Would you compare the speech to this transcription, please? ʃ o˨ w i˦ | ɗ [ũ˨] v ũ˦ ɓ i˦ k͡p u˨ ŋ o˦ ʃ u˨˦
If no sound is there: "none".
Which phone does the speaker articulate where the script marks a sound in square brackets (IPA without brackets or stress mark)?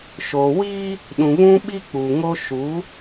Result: ũ˨